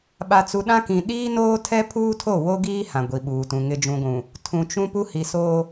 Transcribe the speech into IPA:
ɓ a˨ t͡s u˨ ɗ ã˦ k ĩ˨ ɗ iː˦ n oː˦ tʰ ɛ˦ pʰ uː˦ tʰ o˦˨ w o˦ ɡ iː˦ h ã˨ ɡʷ i˨ ɓ uː˨ t ũ˨ ŋ ɪ˨ d͡ʒ ũ˨ ɡʷ ũ˨ | tʰ ũ˨ t͡ʃ ũ˦ p u˦ h i˨ s oː˦

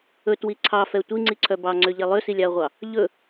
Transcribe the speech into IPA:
ɵ t w i ǀʰ ɑ f ɛ tʷ i ŋ͡ǀ i ǀʰ œ b ɑ ŋ͡ǀ ø ʎ ɛ lˠ ø s i lʲ ɑ ɐ̯ ʁʷ ɑ | ʎ ɵ

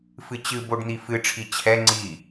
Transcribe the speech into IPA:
f ɨ t͡ɕ ɨ b o ɖ n̪ i f ɨ ʈ͡ʂʰ i t͡ɕʰ ɛ ŋ͡ǀ i

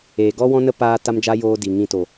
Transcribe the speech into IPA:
eː˨ ɡ ɔ˦ w ɔ̃˦ n ə˦ p aː˦ t a˦ m d͡ʒ a˦ j oː˦ d i˨ ŋ ĩ˧ t o˨

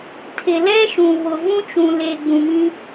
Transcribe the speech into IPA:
tʰ ɪ˨ l ɛ˦ ʃ ũ˨ β ʊ˨ v ũ˦ t͡ʃ ũ˨ l e˨ ɡ͡b ũ˨ m ĩ˦

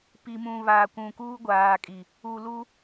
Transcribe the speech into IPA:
p i˨ m ũ˨ β a˨ kʷ ũ˨ k uː˦ ɡʷ aː˨ kʼ i˨ | u˨ l u˦

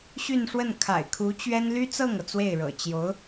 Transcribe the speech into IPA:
ɕ y˥˧ n ʂ w ə˥˩ n kʰ a̰˨˩ ɪ̯ kʰ u˧˥ t͡ɕ ɥ ɛ˥ n l y˥ t͡s ɤ˥˩ ŋ ɤ˩ t͡s w e˥˩ ɪ̯ ɻ ɤ̰˨˩ t͡ɕ j o˧˥ ʊ̯

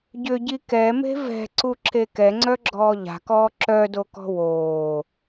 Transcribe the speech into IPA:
ɟ ʏ ɟ i k ɛ m e̤ v ɛ̤ ǀ u ǁ e k ɛ ŋ͡ǀ œ ɡ͡ǁ ɔː ʎ a̤ k ɔː ǁ œ d o k ɔ̤ w oː

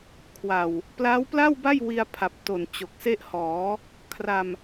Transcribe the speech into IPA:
kʰ w a˨˩ w | p l a˦˥ w p l a˥˩ w b a˥˩ j w i˧ a̯ pʰ a˨˩ p̚ t o˨˩ n t͡ɕ o˨˩ k̚ s e˥˩ ʔ h ɔː˩˦ | kʰ r a˧ m

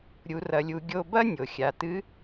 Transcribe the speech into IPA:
ɾʲ u˩˧ r ɐ˩˧ lʲ u˩˧ ɡʲ o˧ b ɐ˥ nʲ o˩ xʲ a˩˧ t ɨ˧˥

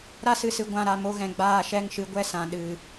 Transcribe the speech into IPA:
ɾ a˦ s ɨ˧ s ɨ˨˦ ɡʷ ã˧ ɾ a˦˨ m o˦ ɣ ɛ̃˨ ɡ͡b aː˦˨ ʃ ɛ˦ ŋ ʃ ɨ˨˦ ɡʷ ɛ˦ s ã˨ ɗ ɨ˨

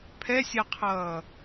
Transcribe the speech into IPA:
pʰ ɛ sʲ a qʰ ʌː

